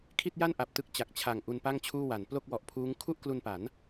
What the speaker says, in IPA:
kʰ i˥˩ t̚ j a˥˩ n ʔ a˨˩ p̚ t ɯ˦˥ k̚ t͡ɕ a˨˩ k̚ t͡ɕʰ a˨˩ ŋ ʔ u˧ n p a˥˩ ŋ t͡ɕʰ uː˥˩ w a˩˦ n p l o˥˩ k̚ w ɔ˨˩ ʔ pʰ uː˦˥ ŋ kʰ u˥˩ ʔ k l u˧ n p a˩˦ n

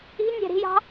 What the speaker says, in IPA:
i̤ nʲ æ̤ ɾ i̤ j ɑ̤

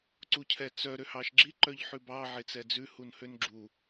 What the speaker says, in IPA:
ǀ u cʰ ɛ t͡s œ ɾ ø h ɑ ʃ ɡ͡ǁ i ǃ œ ʎ ħ ʉ b ɑ ʕ e t͡s ɛ d͡z ʉ h u n h ø n ɡ͡ǁ u

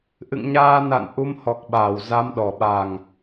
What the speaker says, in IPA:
ʔ ɨ̰˧˨ ŋ ɲ aː˧ n a̰˧˨ n ʔ u˧ m h ɔ˨˩ k̚ ɓ aː˧˩ w z a˨˦ m ɗ ɔ˨˩ ɓ a˨˩ ŋ

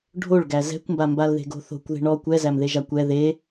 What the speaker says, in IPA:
ɖʱ o ɭ ɡ æ z ɛ̤ kʷ m b a m b a l ð e̤ ɡ o̤ θ o̤ kʷ ð e̤ ɳ ɔ kʷ ɛ z æ m ð e ʒ a kʷ ɛ ð e

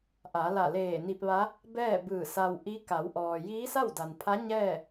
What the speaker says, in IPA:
ʔ a˩˧ l a˧˩ l eː˧˩ n i˧ p̚ ʋ a˧˥ | b ɛː˥˨ b ɯː˧˩ s a˧ w ʔ i˧˥ k a˩˧ w ʔ ɔː˩ j iː˧˥ s a˥˨ w d a˩ n pʰ a˧˥ ɲ ɛː˥˨

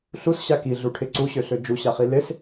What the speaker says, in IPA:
ɬ u s ɕ a k i ɮ u ʈʰ ɪ ǀ u ɕ ø ɬ ø d͡ʒ u ɕ a χ i l ɪ s

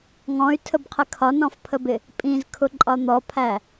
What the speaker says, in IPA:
ŋ ɔ̃ y̯ tʰ ə b qʰ ɪ kʰ ɒ n ɔ̃ f pʰ ə b ɪ | pʼ ĩ z kʰ ʊ ǃʼ ɒ n̪ ɔ pʰ æ

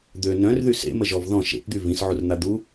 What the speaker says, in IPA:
d̪ ø n œ̃ r ð y s ḛ m ə ʒ ɔ v ð ɔ̃ ʃ ḛ p d̪ y v ĩ s ʕ u r n̪ a d̪ u

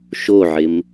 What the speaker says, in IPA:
ʃ o ʕ ɪ m

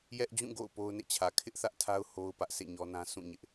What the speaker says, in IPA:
j ɛ˦ ʔ d͡ʑ ũ˦˨ ɡ o̰˦˨ ʊ̯ p o˦ ʊ̯ n ḛ˦˨ t͡ɕʰ ä˨ kʰ ɪ˦ ʔ θ ä˦ ʔ tʰ a˦ ʊ̯ h o˦ ʊ̯ p ä˦ ʔ s ḛ˦˨ ɲ ɔ˦ n ã˦ sʰ ũ˦˨ ɲ ɪ˦ ʔ

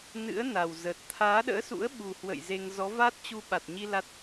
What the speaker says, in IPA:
n ɨ̰˧˥ ə̯ n a˨˩ w z ə˨˩ t̚ t̪ʰ aː˨˦ ɗ ə̰ː˧˥ s ṵ˧˥ ə̯ ɓ u˨˩ h w ə̰˧˨ j z e˧ ŋ z ɔ˨˦ v a˦˥ t̚ t͡ɕ u˧ ɓ a˨˩ t̚ ɲ i˧ l a˦˥ t̚

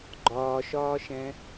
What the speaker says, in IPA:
ɡ͡ǃ ɒː ʃ ɒː ʃ ɛ̃

